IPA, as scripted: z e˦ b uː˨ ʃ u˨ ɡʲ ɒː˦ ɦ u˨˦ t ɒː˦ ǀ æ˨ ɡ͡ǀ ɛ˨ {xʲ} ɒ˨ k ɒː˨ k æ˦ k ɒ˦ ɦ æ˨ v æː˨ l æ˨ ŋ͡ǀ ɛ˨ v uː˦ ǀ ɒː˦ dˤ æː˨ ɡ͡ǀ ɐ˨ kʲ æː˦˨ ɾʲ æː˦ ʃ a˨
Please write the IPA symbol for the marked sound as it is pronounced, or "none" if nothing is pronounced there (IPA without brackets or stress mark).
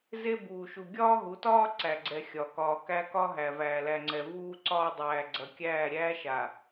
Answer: xʲ